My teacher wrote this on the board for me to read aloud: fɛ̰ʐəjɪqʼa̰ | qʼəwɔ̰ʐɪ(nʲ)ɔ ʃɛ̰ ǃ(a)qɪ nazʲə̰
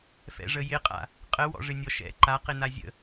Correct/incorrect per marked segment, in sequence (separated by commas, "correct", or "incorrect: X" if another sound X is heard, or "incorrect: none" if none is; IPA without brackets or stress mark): correct, correct